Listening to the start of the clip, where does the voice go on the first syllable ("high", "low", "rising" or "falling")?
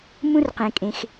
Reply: high